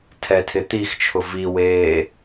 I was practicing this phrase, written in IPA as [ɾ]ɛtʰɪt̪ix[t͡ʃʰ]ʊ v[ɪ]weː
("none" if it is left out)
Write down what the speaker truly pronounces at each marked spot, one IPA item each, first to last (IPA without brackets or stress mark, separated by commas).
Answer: tʰ, t͡ʃʰ, i